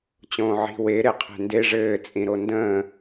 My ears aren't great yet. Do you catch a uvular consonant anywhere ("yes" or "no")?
yes